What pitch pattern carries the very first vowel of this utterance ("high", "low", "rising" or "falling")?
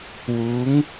rising